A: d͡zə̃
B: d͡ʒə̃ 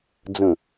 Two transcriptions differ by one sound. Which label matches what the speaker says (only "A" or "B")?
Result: A